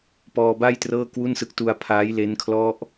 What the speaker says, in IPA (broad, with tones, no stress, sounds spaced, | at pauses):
p ɔː˧ b a˥˩ j t r ɤː˥˩ k w u˥˩ n s ɯ˦˥ k̚ t u˧ a̯ pʰ aː˦˥ j l e˦˥ n kʰ l ɔ˦˥ ʔ